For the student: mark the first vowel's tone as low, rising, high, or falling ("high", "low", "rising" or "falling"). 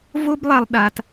high